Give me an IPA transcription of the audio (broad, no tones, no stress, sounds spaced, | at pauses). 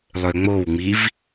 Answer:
lˠ ø ŋ͡m o w ŋ͡m i v